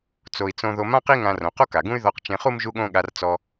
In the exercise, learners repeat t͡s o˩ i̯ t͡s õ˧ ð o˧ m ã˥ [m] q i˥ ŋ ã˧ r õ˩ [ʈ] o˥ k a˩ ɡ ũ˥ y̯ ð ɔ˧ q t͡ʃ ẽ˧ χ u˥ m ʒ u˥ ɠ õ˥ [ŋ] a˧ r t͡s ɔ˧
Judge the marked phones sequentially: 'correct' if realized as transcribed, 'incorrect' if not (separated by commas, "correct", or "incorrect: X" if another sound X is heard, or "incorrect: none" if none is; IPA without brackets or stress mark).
incorrect: none, incorrect: q, incorrect: ɠ